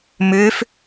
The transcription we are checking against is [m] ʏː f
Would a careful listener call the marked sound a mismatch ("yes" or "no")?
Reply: no